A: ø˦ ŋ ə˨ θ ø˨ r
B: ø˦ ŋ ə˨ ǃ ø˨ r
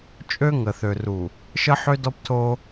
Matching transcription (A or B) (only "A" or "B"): A